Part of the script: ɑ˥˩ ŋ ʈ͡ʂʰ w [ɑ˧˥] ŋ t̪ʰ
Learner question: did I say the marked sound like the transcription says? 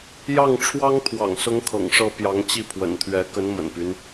no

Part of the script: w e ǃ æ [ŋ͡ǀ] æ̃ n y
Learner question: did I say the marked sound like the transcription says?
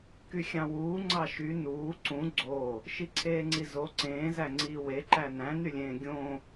no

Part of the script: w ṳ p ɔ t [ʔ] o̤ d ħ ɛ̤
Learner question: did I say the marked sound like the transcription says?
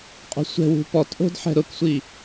yes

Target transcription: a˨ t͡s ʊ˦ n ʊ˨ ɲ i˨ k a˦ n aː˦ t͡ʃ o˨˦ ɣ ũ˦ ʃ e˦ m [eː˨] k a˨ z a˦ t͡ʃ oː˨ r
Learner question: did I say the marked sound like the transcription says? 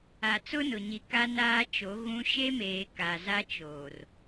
yes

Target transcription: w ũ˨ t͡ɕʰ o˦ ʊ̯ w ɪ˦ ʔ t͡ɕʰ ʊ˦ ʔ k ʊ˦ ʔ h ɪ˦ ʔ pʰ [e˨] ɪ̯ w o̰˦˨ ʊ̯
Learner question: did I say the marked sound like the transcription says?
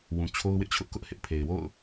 yes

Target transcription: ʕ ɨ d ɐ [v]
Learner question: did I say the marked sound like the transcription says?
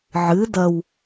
no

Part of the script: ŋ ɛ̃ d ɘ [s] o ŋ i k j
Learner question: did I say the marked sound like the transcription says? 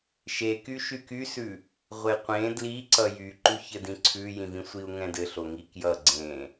no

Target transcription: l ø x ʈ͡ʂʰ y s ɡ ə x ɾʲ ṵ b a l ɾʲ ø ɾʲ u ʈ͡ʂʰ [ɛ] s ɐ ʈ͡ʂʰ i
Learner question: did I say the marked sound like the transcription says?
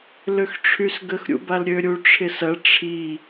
no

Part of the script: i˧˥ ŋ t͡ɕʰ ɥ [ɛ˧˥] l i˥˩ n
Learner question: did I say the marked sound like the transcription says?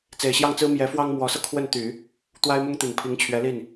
yes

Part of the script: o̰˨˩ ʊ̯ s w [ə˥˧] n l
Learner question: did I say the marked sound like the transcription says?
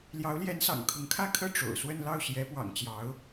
yes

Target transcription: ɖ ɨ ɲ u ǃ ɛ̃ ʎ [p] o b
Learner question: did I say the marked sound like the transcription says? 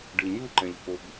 yes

